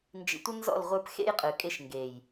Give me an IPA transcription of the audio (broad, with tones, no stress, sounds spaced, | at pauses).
n d͡ʒ ḭ˨ tʷ ə˦ n z ɔ̰˦˨ l ʁʷ ə˞˦ p x ḛ˦ j qʼ ɯ˨ kʼ e˦ ʃ ŋ ɡ e˨ j